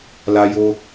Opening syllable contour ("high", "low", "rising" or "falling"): high